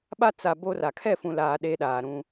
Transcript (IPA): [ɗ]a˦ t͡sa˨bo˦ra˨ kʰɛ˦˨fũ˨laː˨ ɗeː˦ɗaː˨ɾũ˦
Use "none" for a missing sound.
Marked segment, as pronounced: ɓ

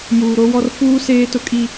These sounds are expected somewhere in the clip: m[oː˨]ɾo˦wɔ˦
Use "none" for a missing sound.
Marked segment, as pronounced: uː˨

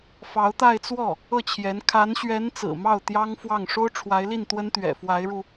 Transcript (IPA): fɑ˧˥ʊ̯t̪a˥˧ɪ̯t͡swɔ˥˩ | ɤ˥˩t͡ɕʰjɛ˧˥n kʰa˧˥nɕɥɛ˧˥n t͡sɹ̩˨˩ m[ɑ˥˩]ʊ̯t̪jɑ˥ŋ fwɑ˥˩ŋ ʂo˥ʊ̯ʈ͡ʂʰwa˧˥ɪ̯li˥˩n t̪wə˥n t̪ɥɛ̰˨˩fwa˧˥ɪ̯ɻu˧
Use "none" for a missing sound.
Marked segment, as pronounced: ɑ˥˩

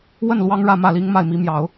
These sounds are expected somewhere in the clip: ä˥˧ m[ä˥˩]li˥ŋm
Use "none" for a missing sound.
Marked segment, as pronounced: ä˥˩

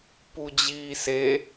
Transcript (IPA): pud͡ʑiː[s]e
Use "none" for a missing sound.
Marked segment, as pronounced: s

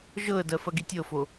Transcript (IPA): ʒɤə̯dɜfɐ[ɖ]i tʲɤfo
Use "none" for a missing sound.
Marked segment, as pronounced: ɡ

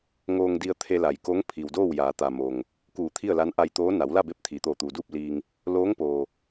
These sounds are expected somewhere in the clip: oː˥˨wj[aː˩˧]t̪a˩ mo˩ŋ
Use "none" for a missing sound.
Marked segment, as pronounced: aː˩˧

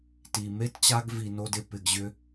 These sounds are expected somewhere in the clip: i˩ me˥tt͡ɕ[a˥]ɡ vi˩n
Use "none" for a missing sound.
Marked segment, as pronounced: a˦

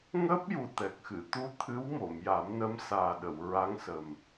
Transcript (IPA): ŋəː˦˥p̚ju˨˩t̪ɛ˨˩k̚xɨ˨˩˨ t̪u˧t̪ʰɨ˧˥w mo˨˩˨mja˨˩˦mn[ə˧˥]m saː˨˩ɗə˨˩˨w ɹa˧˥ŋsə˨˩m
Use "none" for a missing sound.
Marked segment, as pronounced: ə˧˥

